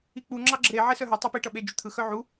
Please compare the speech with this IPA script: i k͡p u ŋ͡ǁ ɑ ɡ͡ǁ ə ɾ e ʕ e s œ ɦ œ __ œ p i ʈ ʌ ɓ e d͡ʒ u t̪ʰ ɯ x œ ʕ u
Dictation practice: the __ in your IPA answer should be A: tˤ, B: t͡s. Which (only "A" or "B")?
A